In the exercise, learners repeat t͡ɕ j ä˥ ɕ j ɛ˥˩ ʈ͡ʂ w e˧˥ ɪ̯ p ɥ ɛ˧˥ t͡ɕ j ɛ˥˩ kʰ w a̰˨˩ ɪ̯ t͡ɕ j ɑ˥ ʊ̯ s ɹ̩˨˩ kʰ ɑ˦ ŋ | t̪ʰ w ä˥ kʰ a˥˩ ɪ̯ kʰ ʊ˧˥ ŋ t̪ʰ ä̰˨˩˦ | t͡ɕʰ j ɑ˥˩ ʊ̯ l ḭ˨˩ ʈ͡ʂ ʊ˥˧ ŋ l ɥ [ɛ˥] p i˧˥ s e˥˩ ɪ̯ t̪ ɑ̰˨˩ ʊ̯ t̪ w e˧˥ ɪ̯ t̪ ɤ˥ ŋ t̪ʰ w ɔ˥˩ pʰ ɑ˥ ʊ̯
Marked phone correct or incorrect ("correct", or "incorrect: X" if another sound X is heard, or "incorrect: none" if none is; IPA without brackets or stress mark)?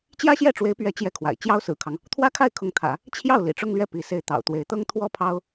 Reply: incorrect: ɛ˥˩